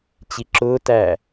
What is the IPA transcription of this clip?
t͡ɕ i ǁ ʊː t æ

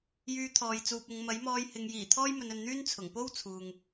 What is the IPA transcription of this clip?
j yː˧ t̪ʰ ɔː˨ j t͡s uː˨ p̚ ʊ˨˧ ŋ m ɐ˨˥ j m ɔː˧ j h ɪ˨ ŋ j iː˨˩ t̪ʰ ɔː˥ j m ɵ˨ n ɵ˨ n n̪ yː˥ n t͡sʰ ʊ˨˩ ŋ p o˥ w t͡sʰ uː˨ ŋ

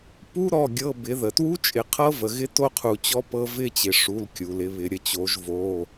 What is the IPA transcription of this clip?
p u˦˥ ɾ ɔ˩˧˩ ɡʲ ɤ˩˧˩ b ɪ˩˧ ð ə˩ t w u˦˥ t͡ʃʼ ɪ˩˧ qʰ ɤ˦˥ v ə˩ ɣ ɪ˦˥ t o˥˧ qʰ u˩ t͡ɕ ɔ˦˥ p ɤ˦˥ v ɪ˥˧ t͡ɕ ɪ˩˧ ʂ u˩˧˩ l kʲ u˩ l ɪ˩˧ β ɪ˩˧ ɾʲ ə˩˧ t͡ɕ o˩˧ ʒ v o˩˧˩

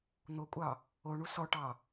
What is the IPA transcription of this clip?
n̪ o kʷʼ ɑ | o ɳ u s ɔ ʈ ɑ

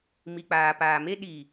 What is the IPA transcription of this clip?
m i˨ k͡p aː˨ p aː˨ m e˦ ɗ i˨

